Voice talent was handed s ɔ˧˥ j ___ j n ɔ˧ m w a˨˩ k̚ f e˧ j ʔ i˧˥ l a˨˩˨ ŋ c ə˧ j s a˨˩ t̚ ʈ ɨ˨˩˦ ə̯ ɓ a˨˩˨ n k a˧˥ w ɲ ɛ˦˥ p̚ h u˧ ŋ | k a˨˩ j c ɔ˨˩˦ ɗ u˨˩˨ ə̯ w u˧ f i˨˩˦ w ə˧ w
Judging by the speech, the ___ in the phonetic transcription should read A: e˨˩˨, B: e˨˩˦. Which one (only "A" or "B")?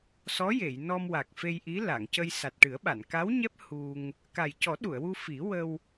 A